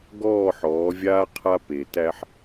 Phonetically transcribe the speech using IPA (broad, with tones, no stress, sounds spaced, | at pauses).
ɡ ɔː˦˨ ħ ɔː˨˦ vʲ aː˦ qʰ a˦ p e˨ t æ˦ ħ